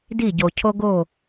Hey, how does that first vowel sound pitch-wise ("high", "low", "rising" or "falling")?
falling